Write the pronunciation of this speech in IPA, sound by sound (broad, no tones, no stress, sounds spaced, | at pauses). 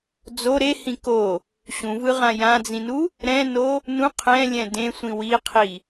d͡z o ɾ e h ĩ k o | ɕ ũ v ɯ ʁ ã j ã d͡z ĩ n u | ɾ ɛ̃ n o | n ũ qʰ ɛ̃ lʲ ɛ̃ d ẽ sʷ ĩ w i qʰ i